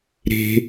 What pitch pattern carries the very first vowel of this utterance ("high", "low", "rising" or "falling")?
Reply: high